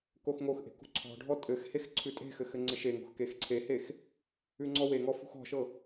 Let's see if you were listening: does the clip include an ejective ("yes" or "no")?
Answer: yes